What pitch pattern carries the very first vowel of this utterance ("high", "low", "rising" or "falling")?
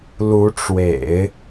rising